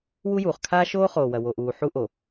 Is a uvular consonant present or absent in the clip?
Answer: present